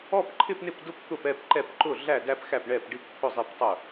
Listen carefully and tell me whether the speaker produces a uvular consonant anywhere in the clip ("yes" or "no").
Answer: no